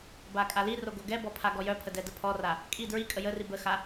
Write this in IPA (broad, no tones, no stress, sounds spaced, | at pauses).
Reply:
b a kʼ a l i r o ɡ o ɡ ɛ b ɔ pʰ a ɡ ɔ j œ pʰ ə d ɛ d ə pʰ ɔ r a | kʼ i d ɹ i kʼ ə j ə r i b ə x a